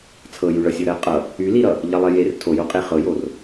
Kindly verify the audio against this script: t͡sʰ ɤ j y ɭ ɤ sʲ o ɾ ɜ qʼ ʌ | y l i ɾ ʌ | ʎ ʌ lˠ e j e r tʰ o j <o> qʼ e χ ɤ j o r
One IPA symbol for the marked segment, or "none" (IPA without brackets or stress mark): o